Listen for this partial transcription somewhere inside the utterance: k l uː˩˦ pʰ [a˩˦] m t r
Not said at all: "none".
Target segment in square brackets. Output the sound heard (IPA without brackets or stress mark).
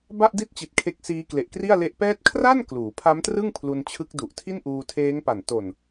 a˦˥